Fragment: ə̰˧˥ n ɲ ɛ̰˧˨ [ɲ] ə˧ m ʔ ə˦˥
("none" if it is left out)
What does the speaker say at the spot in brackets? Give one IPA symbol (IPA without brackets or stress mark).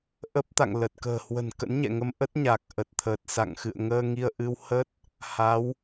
ŋ